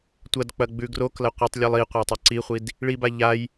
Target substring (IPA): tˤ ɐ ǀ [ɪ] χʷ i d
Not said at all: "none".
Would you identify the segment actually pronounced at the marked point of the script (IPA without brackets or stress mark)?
i